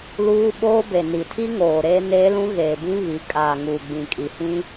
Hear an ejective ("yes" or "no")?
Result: yes